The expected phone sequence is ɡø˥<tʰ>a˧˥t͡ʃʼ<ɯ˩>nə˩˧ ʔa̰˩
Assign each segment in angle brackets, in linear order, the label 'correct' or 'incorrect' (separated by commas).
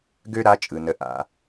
incorrect, correct